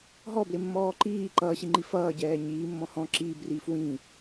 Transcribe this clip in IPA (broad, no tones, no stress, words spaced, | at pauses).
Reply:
ɦɔblɪmːɔː ǃiː ǃʌːɕiŋ͡ǃi fʌːɟɛː ɲiːmːɔ̃ hɔ̃ ǁiːbriːf wĩ